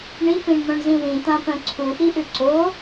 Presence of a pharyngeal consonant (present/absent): absent